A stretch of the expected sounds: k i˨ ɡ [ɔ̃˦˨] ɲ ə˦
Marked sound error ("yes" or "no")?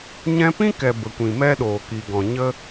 yes